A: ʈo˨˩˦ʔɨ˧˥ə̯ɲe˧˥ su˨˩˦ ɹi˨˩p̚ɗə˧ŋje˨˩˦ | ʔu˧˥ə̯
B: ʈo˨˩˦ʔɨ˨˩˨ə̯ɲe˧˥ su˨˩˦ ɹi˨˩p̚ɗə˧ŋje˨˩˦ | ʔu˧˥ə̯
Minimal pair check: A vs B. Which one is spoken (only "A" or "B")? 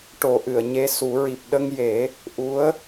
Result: B